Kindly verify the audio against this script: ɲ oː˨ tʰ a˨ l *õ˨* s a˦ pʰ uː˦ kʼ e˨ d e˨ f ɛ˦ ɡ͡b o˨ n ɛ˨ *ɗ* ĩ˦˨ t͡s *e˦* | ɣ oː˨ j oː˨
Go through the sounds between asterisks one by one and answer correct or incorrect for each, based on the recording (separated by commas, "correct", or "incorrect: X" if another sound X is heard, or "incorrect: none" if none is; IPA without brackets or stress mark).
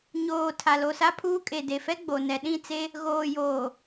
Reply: incorrect: o˨, correct, correct